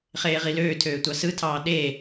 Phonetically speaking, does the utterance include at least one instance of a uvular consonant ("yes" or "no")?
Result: yes